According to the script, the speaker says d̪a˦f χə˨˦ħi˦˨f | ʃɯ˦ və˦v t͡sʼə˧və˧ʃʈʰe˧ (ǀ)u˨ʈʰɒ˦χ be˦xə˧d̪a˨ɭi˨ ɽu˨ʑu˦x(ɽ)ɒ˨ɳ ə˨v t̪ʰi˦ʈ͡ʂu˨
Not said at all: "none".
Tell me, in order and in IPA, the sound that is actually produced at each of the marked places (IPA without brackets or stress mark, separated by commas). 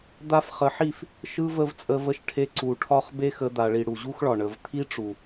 ǀ, ɭ